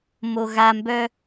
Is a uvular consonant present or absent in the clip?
absent